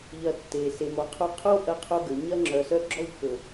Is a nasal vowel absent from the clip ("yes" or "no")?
yes